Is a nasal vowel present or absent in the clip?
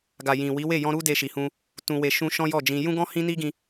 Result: present